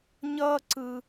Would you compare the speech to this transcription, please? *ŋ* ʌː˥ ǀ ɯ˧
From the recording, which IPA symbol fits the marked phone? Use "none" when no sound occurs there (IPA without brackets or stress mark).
ɲ